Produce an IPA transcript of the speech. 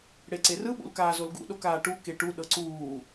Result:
ɽ e ǀ e r ɯ ɓ ṵ l k aː z o l ɡ ṵ ɗ o k aː ʈ u k e ʈ u ɗ ɤ ǀ uː

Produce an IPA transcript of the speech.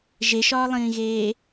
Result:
ʒ e ʃ ɒː lˠ ĩː ɣ eː

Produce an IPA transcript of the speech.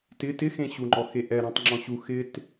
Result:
t ɪ t ɪ x ẽ ɕ u ŋ͡ǃ ɔ x e ʔ ɛ ɾ ɔ̃ tˤ ŋ͡ǁ ɔ̃ ɕ u x ɪ t

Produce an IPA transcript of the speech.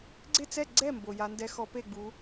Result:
ɡ͡ǀ ɪ˥˩ t͡s ɛ˥˩ ɡ͡ǀ ɛ˥˩ m b o˩ j a˩˧ n d ɛ˧ x ɔ˧˥ p e˥˩ ɡ͡b u˩˧

